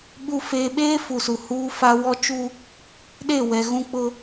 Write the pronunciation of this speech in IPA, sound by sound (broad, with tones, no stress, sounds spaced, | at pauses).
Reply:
ɓ u˨ f eː˨ ɓ eː˦ f u˨ s u˨ h uː˦ f a˦ w ɔ˦ t͡ʃ u˦ | ɗ e˦˨ w ɛ˨ ɣ ũ˦ k͡p ʊ˦